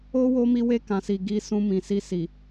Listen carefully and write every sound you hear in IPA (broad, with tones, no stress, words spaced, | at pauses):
o˦ wo˧mi˧we˧ kã˨si˨ ɡi˧ sũ˧mĩ˨si˧si˨